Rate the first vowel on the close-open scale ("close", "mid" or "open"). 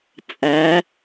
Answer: open